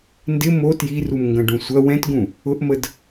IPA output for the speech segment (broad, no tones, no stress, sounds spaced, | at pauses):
n d ɪ m o t j i r u m ŋ ɡ ɐ̃ ɖ ũ sʷ ɐ w ɛ̃ t ɡ ũ | ʊ ʔ m ə d